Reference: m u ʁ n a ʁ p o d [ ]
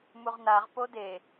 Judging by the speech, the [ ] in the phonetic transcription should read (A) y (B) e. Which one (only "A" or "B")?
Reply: B